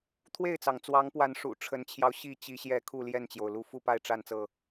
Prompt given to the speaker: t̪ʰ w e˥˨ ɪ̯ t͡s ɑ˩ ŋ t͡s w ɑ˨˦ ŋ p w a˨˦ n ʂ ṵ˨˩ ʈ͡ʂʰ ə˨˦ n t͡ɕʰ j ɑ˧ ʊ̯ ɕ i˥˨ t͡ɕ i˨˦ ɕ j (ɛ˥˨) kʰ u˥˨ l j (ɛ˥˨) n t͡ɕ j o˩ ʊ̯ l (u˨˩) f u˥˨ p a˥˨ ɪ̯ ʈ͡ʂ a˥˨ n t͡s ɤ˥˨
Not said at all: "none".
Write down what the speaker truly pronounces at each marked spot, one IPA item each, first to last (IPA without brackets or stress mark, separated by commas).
ɛ˨˦, ɛ˥˨, u˦